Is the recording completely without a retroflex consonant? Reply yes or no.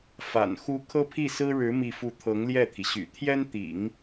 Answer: no